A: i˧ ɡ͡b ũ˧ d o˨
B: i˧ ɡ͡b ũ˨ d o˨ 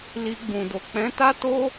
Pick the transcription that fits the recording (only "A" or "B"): B